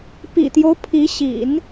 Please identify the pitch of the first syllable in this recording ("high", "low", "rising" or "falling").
low